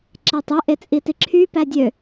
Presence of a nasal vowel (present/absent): absent